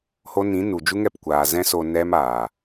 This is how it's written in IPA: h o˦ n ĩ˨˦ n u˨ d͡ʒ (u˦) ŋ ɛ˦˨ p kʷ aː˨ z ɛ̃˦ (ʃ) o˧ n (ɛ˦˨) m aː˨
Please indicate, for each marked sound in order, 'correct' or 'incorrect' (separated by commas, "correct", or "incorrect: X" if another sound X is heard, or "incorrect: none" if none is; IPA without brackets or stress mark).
correct, incorrect: s, incorrect: ɛ˦